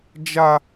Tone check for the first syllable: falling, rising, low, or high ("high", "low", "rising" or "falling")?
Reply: high